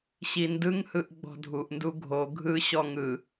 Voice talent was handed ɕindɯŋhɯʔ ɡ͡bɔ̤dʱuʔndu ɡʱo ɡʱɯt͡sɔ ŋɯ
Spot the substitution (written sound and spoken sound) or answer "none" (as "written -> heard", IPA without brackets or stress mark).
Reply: t͡s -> ɕ